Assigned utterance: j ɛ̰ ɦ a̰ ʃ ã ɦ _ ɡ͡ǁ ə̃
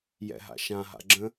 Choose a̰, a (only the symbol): a̰